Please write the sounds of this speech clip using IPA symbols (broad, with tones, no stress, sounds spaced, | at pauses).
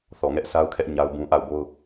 θ ɔ˨ ŋ ɛ˦ ʔ sʰ a˦ ʊ̯ kʰ ɛ˦ ʔ ɲ a˦ ʊ̯ b ũ˦ ʔ a˦˨ ʊ̯ b o˦ ʊ̯